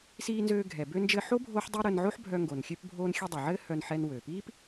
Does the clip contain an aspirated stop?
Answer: no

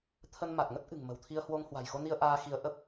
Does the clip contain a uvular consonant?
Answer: no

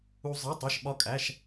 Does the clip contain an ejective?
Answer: yes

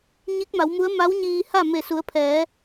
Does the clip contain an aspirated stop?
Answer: yes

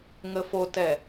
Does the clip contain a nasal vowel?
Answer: no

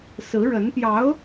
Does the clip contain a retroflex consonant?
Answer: yes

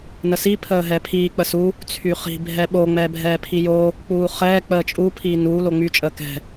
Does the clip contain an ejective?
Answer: yes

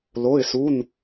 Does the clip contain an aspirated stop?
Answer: no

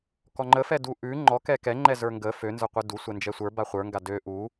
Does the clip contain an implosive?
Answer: no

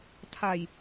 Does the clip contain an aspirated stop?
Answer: yes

